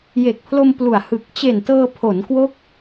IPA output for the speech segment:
je˨˩k̚pʰlo˧m plu˨˩a̯ hɯ˨˩k̚ t͡ɕe˨˩ntɤː˧ pʰo˩˦nkwo˦˥k̚

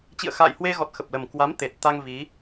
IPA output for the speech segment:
t͡ɕḭ˧˨ə̯xa̰ː˧˨jhwe˧ɣɔ˨˩t̚ xə˨˩p̚lə˨˩mkwa˨˦m t̪e˨˩t̚ t̪a˧ŋ vi˨˦

